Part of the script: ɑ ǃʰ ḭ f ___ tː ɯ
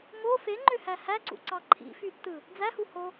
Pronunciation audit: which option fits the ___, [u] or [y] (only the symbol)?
y